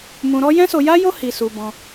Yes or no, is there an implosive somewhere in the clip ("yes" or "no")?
no